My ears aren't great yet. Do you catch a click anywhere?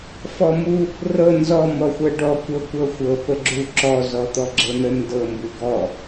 yes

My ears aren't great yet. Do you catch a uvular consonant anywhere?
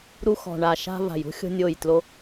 no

